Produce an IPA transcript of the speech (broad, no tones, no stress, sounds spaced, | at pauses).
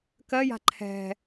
k ɜ j a̤ ǃʰ ɛ̤